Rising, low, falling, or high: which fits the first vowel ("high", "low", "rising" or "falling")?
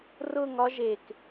falling